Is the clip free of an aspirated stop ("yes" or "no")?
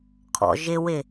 no